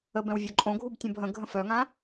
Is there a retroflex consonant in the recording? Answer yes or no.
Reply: no